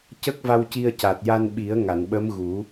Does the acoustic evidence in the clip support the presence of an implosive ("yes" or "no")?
yes